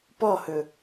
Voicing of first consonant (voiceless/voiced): voiceless